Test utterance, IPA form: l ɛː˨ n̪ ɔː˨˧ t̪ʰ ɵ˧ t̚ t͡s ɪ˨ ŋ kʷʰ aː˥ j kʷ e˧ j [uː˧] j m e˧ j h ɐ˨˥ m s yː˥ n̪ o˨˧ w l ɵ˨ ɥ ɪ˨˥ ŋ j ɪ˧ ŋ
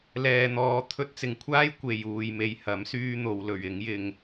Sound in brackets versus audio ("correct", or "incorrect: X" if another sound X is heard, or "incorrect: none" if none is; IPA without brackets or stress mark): correct